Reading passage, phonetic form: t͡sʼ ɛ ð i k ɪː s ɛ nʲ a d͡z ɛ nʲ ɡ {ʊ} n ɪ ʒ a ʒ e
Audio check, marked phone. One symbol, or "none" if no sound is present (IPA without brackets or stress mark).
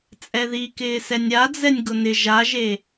ʊ